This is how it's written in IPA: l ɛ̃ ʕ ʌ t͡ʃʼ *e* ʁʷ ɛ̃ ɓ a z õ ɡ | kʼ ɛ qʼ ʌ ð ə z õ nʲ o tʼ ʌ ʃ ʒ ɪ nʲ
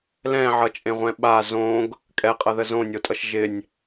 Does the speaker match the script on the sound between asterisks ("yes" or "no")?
no